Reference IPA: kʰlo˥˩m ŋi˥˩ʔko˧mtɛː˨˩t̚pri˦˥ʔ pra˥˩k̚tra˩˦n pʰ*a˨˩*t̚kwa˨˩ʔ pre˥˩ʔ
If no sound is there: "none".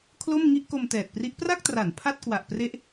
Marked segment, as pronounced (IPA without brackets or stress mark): a˥˩